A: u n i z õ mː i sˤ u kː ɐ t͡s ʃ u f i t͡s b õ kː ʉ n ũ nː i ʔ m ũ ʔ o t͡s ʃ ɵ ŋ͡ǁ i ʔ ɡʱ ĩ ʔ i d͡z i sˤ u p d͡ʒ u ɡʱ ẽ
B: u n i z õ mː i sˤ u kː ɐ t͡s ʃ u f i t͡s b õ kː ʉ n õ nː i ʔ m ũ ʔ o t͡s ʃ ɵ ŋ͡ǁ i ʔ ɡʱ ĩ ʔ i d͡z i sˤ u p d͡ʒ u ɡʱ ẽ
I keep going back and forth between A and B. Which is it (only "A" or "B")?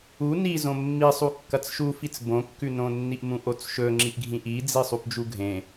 B